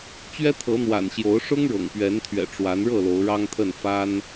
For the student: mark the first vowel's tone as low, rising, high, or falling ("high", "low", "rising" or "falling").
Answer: high